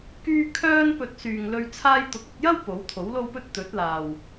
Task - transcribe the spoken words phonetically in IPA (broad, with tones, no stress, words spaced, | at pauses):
kyː˥ kʰœː˥npɵ˧t̚ syː˨ŋlɵ˧ɥ t͡sʰaː˧jt̪ʊ˨˥k̚ɐ˧t̚jɐ˥w po˨˥wt̪ʰo˨˥wlo˥wpɵ˥t̚ t̪ɵ˨˥t̚laː˨w